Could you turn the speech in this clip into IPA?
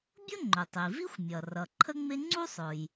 bʲʊ˥ŋ͡ǃʊ˩tˤi˩vi˥xʷ mʲʌ˩ rʌ˩ǃʰə˥ŋ͡mɪ˥ ŋ͡ǀu˥sˤʊ˩j

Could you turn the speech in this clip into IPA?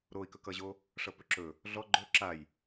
ɾoi̯kɵkʌʑo | ʂʌpɵǁɵ | ɮɔ ɡ͡ǃɵ ǁaj

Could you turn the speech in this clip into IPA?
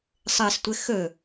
sˤɘstʷɘ xɵ

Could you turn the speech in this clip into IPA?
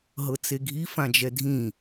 ɦɤt͡seɡʱi fãd͡ʒɛdʱĩ

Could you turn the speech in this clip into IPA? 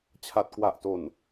t͡ɕʰa˨˩t̚kwa˨˩ʔto˨˩n

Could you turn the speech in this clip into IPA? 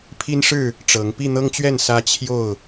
pʰi˦nʂɻ̩˥˨ | ʈ͡ʂɤ˨˦ŋ pi˥˨n̪ɤ˦ŋt͡ɕɥɛ˥˨n sä˦t͡ɕʰjo˥˨ʊ̯

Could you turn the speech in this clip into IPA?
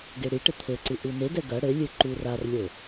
ɡeɽiʈɘ t̪ʰɘǀɨ ʔunedɛ ɡɐ ɽɘlʲɨ ǃurarlʲo

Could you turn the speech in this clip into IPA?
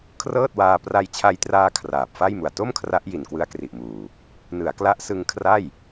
kʰrɤː˥˩t̚waː˧ pra˧jt͡ɕʰa˧jtraː˧ kʰraː˨˩p̚fa˥˩jmu˨˩a̯ to˥˩mkʰra˦˥ʔ ji˨˩nkwɯ˦˥a̯kri˨˩ʔmuː˨˩ | nɯ˩˦a̯kla˦˥ʔsɯ˧ŋkʰra˥˩j

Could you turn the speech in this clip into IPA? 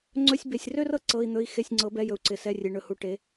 ŋ͡ǀɵ˧˥˧sʲ be˨sʲrø˥rɤ˥ ǀɤ˧˥˧i̯n̪ɵ˧˥˧i̯ xe˧˥˧sʲŋ͡ǀɤ˨˥bɛ˧˥˧jɵ˨u̯ ǀɪ˨sɛ˧˥˧rʲe˨ ɳɵ˨hu˨˥ʈe˨˥

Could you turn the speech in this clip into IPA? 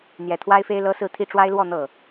n̪jɛ˨˩t̪ʰwa˥ɪ̯fe˥ɪ̯lɤ˥ sɹ̩˥˧t̪ʰi˥˩ ʈ͡ʂwa˥ɪ̯lwɔ˥˧ n̪ɤ˥˩

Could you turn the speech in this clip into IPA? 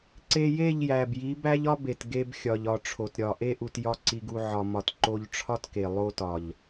ǀe˧je˦˨ʎjæ˨b ji˨˦bæ˦ʎ ɒ˦be˨t ɡe˧bxʲɒ˨ʎɒ˨ ʈ͡ʂʰo˨tɾʲɒ˨ʔe˦ ʔu˧tjɒ˦ǀi˧ɡu˧ ʕɒ˧mɒ˧t ǃo˧ʎʈ͡ʂʰɒ˦tke˨ lˠo˧tɒ˨ʎ

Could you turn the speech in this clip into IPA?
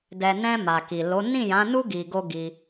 dɛ˨nɛ̃˧ ma˨ki˨ lo˨˦ nĩ˦˨jã˨˦nu˦ ɡi˧ɡo˦ɡi˧

